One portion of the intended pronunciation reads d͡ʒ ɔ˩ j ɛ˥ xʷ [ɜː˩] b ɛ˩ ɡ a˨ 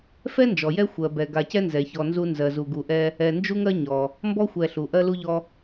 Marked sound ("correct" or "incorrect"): incorrect